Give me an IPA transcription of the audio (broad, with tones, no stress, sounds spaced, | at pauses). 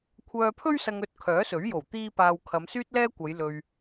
kʷʰ œː˨ pʰ ɵ˧ ɥ s ɐ˨ ŋ ɵ˨ t̚ kʰ œː˨˥ s ɵ˨˥ ɥ j o˨˩ w t̪ iː˧ p aː˨ w kʰ ɐ˨˧ m s yː˥ t̚ l ɛː˥ kʷ ɐ˨˧ j l ɵ˨ ɥ